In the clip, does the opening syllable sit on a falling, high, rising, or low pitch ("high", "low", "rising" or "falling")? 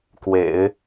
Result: low